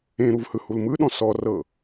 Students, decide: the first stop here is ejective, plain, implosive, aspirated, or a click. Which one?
implosive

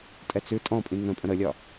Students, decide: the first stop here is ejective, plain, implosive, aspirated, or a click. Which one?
ejective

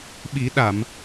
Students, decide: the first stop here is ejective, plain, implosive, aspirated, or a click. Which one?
implosive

